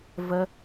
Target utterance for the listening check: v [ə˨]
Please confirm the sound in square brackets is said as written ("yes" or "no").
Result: no